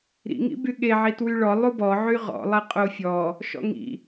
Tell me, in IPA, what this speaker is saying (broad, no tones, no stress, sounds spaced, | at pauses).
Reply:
ɾ ḭ ŋ ḭ b y ɠ e ʕ i t w y ɭ ɔ lˠ u b ɔ ʕ y ʁ ɔ̰ lˠ ɛ qʼ o fʲ ɔ | ʃ ɔ̰ ŋ ḭ